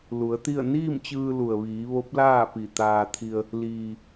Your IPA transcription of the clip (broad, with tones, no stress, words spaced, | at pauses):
lu˩˧ə̯t̪i˥˨ə̯ niː˥˨mt͡ɕɯː˧ lu˩ə̯ʋiː˩˧ ʋo˧˥p̚laː˥˨pi˧˩t̪aː˧ t̪ʰi˧ə̯ | liː˩